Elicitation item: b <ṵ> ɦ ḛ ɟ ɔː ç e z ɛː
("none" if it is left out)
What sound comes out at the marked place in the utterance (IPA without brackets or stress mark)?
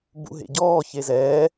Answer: ṵ